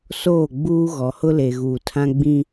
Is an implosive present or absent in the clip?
absent